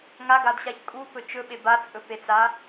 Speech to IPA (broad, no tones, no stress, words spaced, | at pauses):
ŋaɡadɕaç kʼupɵ t͡ʃɵɓe bat͡sʼɵpet͡sa